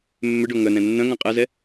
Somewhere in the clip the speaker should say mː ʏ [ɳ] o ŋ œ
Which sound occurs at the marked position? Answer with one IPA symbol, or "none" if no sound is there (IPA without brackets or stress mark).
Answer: ɖ